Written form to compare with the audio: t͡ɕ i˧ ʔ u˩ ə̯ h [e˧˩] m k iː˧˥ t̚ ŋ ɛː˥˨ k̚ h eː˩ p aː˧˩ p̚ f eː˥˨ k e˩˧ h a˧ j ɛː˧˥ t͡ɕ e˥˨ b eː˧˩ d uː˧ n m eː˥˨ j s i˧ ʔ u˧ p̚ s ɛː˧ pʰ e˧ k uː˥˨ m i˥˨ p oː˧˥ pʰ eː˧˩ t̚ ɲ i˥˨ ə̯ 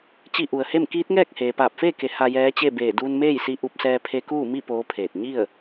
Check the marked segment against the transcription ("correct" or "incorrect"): incorrect